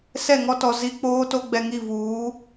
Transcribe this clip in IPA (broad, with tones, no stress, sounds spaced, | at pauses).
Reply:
s ɛ˦˨ ŋ ɔ˦ t ɔ˨ z i˦ k͡p oː˦ t o˦ ɡ͡b ɛ˨ ŋ i˦˨ v uː˨˦